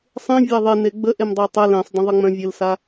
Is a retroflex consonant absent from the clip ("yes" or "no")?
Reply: yes